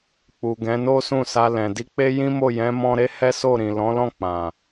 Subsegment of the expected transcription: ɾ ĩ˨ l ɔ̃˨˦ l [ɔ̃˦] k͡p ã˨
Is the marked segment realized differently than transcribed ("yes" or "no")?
yes